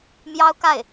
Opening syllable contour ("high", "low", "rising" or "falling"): high